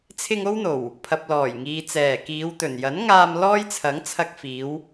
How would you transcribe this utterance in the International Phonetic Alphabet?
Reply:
t͡sʰɪ˧ŋ o˥wn̪o˨˩w | pʰɐ˨p̚lɔː˨˩jŋiː˨ t͡sɛː˨˩kiː˨˧wt̪ɵ˨˩n jɐ˨˥nŋaː˧m lɔː˥jt͡sʰɐ˨˥ŋ t͡sʰɐ˧k̚fiː˨˧w

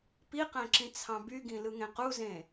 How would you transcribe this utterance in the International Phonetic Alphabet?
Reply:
piqæ̃ǁĩt͡sʰɑ̃ byɡĩlɯŋẽ quzẽ

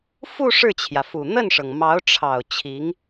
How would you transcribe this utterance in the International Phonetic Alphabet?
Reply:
fu˥˧ ʂɻ̩˥˩t͡ɕʰjä˩fu˨˩ n̪ə˥˩nʂɤ˩ŋ mɑ˧˥ʊ̯ʈ͡ʂʰɑ˨˩ʊ̯ t͡ɕʰi˧˥ŋ

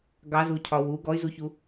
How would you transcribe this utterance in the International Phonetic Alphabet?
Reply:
ɡɑzucʰɒ wuɡ ɔy̯zuçu

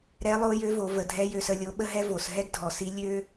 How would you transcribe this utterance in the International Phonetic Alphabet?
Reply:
ɾɛ˧˥lˠo˧˥jø˧˥vo˩˧ və˩˧dʱɛ˧˥jø˧sə˧ lʲo˧˥ɓə˥ɦɛ˥vo˩˧s ɦɛ˥ɡdʱɔ˩˧si˧˥ lʲø˥

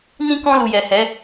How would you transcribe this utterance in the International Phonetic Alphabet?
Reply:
nĩ˧kɔ̃˧ lu˨jɛ˨ hɛ˨˦

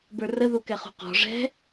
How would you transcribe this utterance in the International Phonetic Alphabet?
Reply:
bə˞rəðu kɛχṳqɔ̤ ʐɛ̤

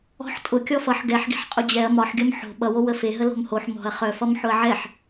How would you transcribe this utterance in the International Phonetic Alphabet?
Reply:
ɔ̤ħ tʼʊ kʲɔfʌħ ɡɛħɡe̤ħ qʼʊd͡ʑɛɐ̯ mɒħɡʲʌm ħo̤ ɓʌwo wəfeɦə lo̤mhoħ mɔ̤ɐ̯ χœfʌm ħʊɐ̯ʕɛħ

